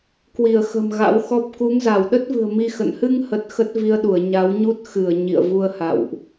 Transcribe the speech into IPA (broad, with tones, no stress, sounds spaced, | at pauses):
k w i˧˩ ə̯ x ə̤˨˩ m ɣ a̰˧˥ w x ɔ˦˥ p̚ k u˨˦ ŋ z a˧˩ w ɗ ə˦˥ t̚ v ɨ̤˨˩ ə̯ m i˧ x ə̰˧˨ n h ɨ˧ ŋ h ə˨˩ t̚ x ə˦˥ t̚ v i˧ ə̯ ɗ u˧˩ ə̯ ɲ a˨˦ w ɲ u˦˥ t̚ x ɨ˧˩ ə̯ ɲ ḭ˧˨ ə̯ v u˧ ə̯ h a̰˧˨ w ʔ